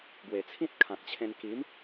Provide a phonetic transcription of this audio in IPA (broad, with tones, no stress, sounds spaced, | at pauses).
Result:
ɡ w e˨˩ t͡sʰ ĩ˦ t̚ kʰ ã˨ k̚ t͡ɕʰ ẽ˧ n k i˨˦ m